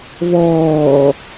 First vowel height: mid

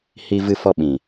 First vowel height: high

